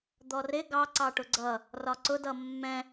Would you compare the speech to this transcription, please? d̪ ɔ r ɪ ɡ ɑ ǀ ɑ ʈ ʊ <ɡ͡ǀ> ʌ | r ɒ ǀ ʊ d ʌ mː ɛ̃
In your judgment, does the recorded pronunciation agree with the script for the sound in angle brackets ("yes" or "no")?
yes